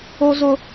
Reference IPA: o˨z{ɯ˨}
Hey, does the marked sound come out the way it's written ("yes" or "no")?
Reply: no